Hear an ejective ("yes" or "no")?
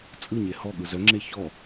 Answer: yes